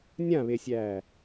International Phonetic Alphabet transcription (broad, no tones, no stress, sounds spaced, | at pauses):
nʲ ã β e sʲ æː